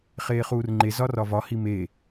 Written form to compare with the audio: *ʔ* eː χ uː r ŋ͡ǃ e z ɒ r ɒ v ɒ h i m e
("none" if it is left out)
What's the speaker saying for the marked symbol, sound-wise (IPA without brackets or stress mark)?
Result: χ